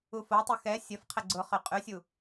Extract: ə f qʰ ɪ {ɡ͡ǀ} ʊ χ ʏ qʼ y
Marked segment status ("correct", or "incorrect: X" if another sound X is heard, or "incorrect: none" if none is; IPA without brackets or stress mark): correct